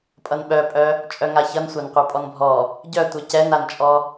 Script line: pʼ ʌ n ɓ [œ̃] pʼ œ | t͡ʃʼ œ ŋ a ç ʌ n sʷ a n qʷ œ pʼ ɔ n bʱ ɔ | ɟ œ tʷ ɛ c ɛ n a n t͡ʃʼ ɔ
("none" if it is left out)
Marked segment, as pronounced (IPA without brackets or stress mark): œ